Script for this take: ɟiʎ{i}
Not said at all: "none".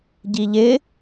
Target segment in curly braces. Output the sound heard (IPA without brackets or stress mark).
ɪ